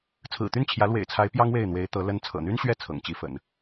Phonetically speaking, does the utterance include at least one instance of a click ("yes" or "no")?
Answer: no